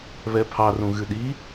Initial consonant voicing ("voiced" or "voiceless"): voiced